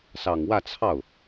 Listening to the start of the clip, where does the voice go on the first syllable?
low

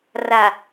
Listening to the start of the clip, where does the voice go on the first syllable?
low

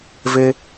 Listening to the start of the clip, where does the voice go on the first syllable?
high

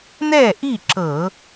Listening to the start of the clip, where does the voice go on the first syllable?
falling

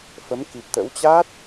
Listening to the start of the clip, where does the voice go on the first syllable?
rising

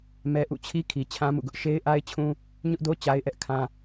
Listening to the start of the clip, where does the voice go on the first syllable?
high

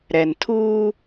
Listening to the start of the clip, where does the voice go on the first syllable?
low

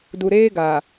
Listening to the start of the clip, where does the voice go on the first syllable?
low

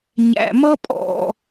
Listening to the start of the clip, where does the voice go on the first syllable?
low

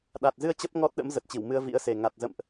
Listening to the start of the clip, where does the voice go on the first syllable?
low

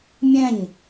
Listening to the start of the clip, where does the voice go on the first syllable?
falling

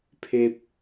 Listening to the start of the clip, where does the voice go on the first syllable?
high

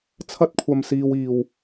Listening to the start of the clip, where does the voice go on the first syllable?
high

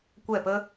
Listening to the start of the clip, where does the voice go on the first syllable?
falling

